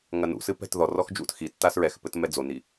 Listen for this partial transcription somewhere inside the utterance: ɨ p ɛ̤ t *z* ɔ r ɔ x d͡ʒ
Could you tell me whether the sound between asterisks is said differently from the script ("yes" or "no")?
yes